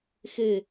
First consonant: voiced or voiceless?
voiceless